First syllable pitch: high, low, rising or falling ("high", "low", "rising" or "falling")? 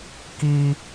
high